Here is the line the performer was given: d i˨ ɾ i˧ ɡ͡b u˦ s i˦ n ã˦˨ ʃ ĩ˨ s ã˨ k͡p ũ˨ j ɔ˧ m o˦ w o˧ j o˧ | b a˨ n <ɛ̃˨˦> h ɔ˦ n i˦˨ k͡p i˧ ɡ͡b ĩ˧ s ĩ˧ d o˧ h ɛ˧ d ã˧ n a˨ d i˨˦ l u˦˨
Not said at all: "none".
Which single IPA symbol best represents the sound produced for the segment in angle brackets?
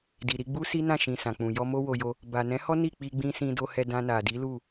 ɛ̃˨˦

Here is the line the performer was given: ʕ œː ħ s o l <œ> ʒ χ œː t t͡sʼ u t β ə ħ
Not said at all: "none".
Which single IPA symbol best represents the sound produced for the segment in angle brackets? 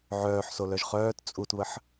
œ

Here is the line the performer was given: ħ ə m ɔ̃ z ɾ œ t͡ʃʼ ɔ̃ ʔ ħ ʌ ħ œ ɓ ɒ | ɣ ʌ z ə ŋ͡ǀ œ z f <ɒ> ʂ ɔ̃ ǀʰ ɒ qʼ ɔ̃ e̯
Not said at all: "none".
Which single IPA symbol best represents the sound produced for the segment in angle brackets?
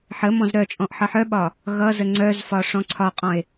ɒ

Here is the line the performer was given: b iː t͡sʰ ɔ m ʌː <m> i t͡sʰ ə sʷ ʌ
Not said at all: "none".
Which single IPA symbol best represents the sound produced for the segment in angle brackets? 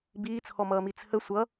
m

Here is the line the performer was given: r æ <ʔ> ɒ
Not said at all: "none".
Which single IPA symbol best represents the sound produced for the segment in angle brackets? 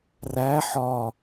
ħ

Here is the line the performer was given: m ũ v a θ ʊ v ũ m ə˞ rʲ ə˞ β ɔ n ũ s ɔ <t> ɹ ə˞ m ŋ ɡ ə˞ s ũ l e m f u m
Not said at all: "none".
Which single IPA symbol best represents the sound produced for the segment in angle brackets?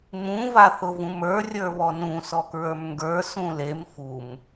k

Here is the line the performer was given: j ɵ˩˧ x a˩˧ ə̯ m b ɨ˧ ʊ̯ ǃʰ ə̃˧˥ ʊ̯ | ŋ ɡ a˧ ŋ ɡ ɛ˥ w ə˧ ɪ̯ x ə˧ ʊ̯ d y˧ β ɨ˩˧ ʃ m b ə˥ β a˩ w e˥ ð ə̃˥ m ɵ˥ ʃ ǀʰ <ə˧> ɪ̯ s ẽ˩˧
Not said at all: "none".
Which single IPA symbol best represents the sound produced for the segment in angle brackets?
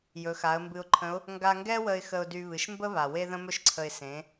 ə˧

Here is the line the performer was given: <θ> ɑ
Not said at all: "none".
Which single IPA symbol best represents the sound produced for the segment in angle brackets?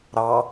ɾ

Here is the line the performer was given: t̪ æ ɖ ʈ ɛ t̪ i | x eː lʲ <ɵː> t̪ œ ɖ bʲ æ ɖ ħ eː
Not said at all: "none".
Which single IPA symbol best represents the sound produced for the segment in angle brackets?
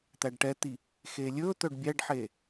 ɵː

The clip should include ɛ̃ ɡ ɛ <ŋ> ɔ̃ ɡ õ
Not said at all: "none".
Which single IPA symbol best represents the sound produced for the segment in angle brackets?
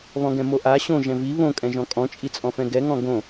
ŋ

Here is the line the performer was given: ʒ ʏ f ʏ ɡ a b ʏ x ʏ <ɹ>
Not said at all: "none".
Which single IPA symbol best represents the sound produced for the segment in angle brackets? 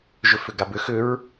ɹ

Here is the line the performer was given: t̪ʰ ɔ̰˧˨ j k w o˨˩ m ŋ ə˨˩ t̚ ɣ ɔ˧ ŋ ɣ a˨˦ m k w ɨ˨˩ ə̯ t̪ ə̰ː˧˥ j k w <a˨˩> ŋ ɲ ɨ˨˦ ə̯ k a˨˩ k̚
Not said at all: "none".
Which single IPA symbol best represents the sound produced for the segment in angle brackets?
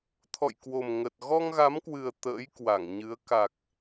a˧˩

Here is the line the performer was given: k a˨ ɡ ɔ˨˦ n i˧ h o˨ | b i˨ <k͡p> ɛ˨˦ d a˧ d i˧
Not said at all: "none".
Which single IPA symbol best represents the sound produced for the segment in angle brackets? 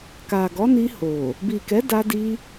k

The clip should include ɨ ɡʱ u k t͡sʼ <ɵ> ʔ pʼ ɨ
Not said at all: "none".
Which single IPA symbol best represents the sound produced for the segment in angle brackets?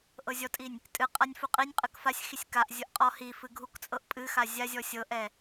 ɤ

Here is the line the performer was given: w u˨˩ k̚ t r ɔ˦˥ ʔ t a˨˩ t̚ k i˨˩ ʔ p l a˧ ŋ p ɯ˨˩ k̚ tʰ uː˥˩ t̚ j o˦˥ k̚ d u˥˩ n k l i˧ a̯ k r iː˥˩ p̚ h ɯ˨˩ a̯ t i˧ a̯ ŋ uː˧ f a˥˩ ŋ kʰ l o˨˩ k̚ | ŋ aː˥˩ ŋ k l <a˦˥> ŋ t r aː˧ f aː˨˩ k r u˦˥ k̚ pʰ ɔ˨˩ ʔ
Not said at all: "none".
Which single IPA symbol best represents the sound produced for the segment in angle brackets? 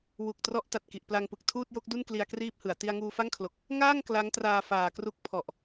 a˦˥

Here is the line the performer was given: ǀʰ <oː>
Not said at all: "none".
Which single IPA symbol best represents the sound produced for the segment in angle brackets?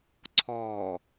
ɔː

